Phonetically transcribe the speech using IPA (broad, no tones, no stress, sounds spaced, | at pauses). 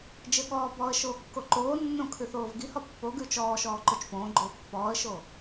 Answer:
d͡ʒ ɘ ɠ ɔː b ɔː ə̯ ʃ oː kː o ǃ oː nː õ kʰ ʉ θ oː v ɡ i h ɔ pː o ɡ ʉ t͡ʃ ɔː ʃ ɔː ǃ o t͡ʃ p õː ɡ͡ǃ oː pː ɔː ə̯ ʃ o